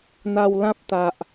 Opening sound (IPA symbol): n̪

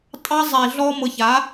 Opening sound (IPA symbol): tʼ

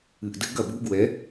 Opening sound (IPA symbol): ɨ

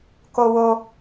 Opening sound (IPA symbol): k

